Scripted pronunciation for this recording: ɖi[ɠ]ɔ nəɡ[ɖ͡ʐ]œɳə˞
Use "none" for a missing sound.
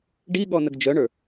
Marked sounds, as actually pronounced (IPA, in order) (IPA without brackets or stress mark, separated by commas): ɠ, d͡ʒ